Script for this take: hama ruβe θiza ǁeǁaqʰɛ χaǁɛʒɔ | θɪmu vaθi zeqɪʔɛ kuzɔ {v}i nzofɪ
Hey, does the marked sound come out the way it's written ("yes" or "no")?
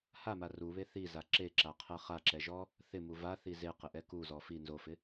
no